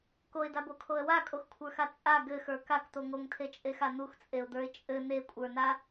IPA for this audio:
k o ɪ̯ d a b o kʰ o ə̯ w a kʼ o x kʷʰ ə˞ x a t͡sʼ a ɡ ɘ x ə˞ k a k t̪ o ŋ o ŋ tʰ e t͡ʃʼ e x a n̪ u x t͡sʼ e ʊ̯ d̪ ə˞ ɪ̯ t͡ʃʼ ɘ n̪ e kʷʼ ə˞ n a

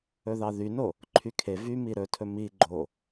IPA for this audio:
ɵ ð ɑ ð y n o | ǃʰ y kʰ e v y m i ɾ ɵ tʰ ɵ m i ɡ͡ǃ o

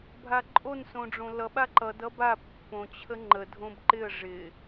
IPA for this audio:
bʱ a ǃʼ o n s õ ɖ͡ʐ õ l ʌ ɓ a ǃ ʌ d ʌ b a pː õ t͡ɕʰ ə ŋ͡ǃ ə dʱ õ b ǃ ɪ ə̯ ʐ ɪ

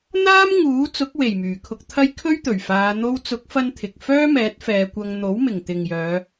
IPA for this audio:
n̪ aː˥ m ŋ uː˨˥ t͡s ʊ˨˥ k̚ w e˨˩ j m yː˨˩ kʰ ʊ˧ k̚ t̪ʰ ɐ˥ j kʰ ɵ˥ ɥ t̪ ɵ˨˩ ɥ f aː˨˧ n̪ o˧ w t͡s ʊ˨˥ k̚ f ɐ˥ n t̪ʰ ɪ˨ k̚ f œː˥ m ɛː˨˥ t̚ f ɛː˨˧ kʷ ɐ˧ ŋ n̪ o˨˥ w m ɪ˨˩ ŋ t̪ ɪ˨ ŋ j œː˨˧

